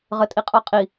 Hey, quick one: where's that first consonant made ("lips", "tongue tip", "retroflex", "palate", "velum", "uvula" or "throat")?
uvula